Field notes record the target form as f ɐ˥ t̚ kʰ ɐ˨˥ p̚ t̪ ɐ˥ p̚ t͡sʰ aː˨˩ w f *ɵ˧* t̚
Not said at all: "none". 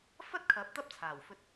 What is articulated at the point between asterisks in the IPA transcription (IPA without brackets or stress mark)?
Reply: ɵ˧